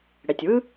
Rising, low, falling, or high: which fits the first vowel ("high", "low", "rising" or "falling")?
low